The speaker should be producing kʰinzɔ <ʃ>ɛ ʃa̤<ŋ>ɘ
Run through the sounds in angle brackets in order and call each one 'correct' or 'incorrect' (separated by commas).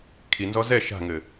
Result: incorrect, correct